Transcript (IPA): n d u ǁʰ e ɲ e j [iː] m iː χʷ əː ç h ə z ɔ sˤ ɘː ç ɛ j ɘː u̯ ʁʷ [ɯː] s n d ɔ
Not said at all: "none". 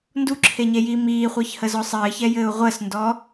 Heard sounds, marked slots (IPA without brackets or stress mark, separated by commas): iː, əː